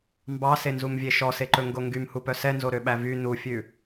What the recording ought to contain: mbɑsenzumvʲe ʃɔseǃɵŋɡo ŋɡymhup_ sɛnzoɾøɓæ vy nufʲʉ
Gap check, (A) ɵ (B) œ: B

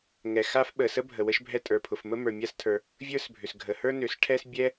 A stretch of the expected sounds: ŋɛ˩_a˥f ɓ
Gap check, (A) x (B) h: A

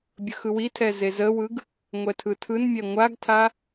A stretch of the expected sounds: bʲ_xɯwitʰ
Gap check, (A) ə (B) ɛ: A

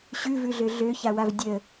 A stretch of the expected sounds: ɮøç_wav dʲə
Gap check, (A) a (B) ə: A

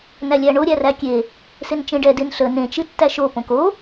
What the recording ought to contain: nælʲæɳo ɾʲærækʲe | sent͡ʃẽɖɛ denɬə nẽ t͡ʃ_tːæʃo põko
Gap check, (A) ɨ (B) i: A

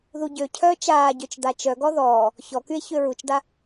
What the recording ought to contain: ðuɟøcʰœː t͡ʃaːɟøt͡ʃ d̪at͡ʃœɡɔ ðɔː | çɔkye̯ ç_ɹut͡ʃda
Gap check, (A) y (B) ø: B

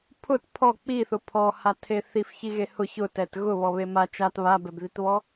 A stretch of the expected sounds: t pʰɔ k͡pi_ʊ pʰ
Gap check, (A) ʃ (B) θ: B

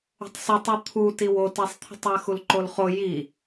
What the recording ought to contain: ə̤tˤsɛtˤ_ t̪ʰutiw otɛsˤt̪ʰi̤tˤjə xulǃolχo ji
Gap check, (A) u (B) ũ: A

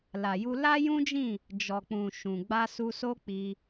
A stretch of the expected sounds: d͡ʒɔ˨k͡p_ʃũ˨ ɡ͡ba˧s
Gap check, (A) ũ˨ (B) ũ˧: A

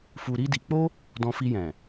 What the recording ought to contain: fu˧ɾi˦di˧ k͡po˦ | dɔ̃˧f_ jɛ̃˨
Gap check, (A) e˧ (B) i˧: B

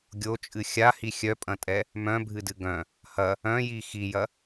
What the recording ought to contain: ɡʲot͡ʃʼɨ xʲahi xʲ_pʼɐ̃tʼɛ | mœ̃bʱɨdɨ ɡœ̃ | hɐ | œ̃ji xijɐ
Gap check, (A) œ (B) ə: A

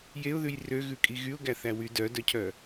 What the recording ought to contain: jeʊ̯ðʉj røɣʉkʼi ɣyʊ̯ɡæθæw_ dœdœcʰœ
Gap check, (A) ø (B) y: B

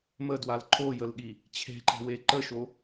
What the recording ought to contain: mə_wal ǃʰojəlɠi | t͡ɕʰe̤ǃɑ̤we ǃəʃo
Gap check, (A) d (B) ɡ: A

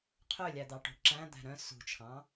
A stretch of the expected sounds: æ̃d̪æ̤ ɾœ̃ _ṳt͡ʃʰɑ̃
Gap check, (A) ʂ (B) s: B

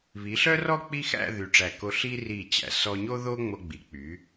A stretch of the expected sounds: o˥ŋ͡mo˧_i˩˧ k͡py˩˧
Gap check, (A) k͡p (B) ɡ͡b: B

